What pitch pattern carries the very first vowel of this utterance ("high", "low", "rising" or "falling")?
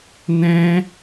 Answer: high